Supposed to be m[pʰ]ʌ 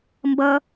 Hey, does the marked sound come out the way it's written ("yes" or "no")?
no